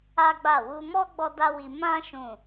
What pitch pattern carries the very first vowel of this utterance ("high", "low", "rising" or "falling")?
high